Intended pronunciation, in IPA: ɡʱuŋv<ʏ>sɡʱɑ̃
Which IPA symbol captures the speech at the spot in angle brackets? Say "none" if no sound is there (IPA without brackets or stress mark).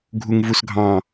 u